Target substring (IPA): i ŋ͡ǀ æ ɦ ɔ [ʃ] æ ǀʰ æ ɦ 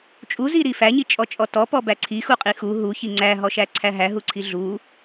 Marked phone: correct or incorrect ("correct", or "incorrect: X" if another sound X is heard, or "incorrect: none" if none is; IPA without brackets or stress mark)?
correct